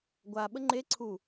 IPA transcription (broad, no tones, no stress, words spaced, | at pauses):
ɡʷa ɓəŋ͡ǃe ǀʰu